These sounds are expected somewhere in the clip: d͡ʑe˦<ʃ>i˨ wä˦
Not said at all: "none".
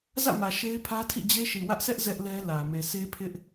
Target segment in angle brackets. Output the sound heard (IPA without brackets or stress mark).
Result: ʃ